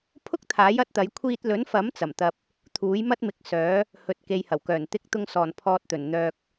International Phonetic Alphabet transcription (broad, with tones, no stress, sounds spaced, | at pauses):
pʰ ʊ˥ k̚ t̪ʰ aː˨˥ j ɐ˨˥ t̚ t̪ ɐ˨˧ j kʷʰ iː˧ t̚ l ɵ˨˥ n f ɐ˨˥ m t͡s ɐ˨˩ m t̪ ɐ˨ p̚ | t̪ʰ uː˨˥ j m ɐ˥ t̚ m ɪ˨˥ k̚ s œː˨˥ | h ɵ˨ t̚ k e˨ j h ɐ˨˩ w k œː˨˩ n t̪ ɪ˨˥ k̚ t̪ ʊ˨ ŋ s ɔː˨˩ n pʰ ɔː˨ t̚ t̪ ɵ˨˩ n n̪ œː˨ k̚